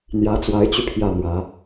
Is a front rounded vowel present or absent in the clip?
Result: present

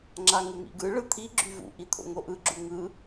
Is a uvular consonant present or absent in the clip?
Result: absent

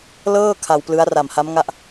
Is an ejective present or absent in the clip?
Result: absent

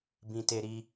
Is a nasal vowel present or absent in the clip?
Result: present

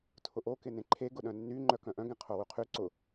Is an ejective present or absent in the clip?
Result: absent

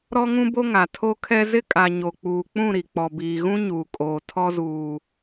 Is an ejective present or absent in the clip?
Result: present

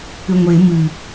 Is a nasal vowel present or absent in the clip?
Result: absent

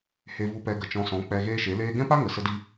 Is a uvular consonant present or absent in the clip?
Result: absent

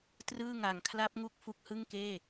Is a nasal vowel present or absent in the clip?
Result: absent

